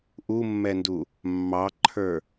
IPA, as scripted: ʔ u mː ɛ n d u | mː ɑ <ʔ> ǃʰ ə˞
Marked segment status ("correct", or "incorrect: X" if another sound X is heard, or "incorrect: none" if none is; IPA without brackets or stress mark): incorrect: none